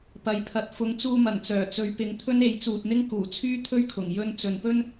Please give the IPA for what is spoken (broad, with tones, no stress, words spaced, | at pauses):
pɐ˨˧jpʰɐ˨t̚ fʊ˨˧ŋt͡suː˧mɐ˨˩n t͡sœː˨˩t͡sɵ˨˧ɥpɪ˨˥ŋt̪ʰɵ˥n e˨˥j t͡suː˨t̚n̪ɪ˥ŋ kuː˨˩t͡sʰyː˥ t̪ʰɵ˥ɥkʰʊ˨˩ŋ jɵ˥n t͡sɵ˨npɵ˥n